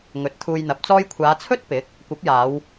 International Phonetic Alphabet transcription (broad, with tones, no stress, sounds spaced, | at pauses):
ŋ ɵ˨˥ t̚ t̪ʰ uː˧ j n̪ ɐ˨˥ p̚ t͡s ɔː˧ j kʷʰ aː˨˧ t͡sʰ ɵ˥ t̚ p ɪ˨˥ k̚ | kʷ ɐ˨˥ p̚ j aː˨˧ w